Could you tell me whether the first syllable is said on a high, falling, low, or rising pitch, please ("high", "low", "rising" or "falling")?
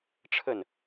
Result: falling